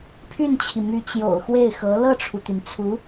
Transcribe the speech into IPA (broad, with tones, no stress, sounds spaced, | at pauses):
pʰ y˥˩ n t͡ɕʰ i˩ m y˧˥ t͡ɕ j o̰˨˩ ʊ̯ x w e˥˩ ɪ̯ x ɤ˧˥ l ɤ˥˩ ʈ͡ʂʰ u˩ t̪ y˩ n t͡sʰ u˧˥